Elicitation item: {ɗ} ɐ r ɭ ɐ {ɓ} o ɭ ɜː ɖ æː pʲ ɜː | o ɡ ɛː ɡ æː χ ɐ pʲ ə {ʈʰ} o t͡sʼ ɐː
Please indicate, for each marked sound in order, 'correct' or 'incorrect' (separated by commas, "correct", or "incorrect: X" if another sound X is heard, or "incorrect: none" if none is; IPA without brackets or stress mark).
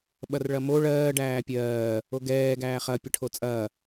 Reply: incorrect: ɓ, incorrect: m, correct